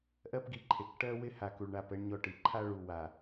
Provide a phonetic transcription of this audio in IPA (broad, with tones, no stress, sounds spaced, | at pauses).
ʔ ɜ˦ p ɡ i˨ ǃʰ e˨ k ʈ ɜ˦ w ɪ˦ h a˨ k u˨ ɭ ɳ a˦˨ p ɛ˦ ɳ ɲ ɔ˦ ʈ i˨ ǃʰ a˦ ɭ u˨ w a˨